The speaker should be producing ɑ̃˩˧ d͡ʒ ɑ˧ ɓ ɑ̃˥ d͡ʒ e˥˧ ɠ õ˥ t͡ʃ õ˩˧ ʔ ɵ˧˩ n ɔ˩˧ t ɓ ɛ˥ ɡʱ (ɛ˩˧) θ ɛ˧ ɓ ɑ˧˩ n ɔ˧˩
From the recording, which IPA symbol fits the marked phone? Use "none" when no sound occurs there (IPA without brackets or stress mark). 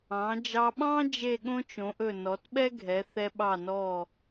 ɛ˩˧